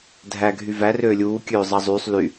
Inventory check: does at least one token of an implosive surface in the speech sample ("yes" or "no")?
no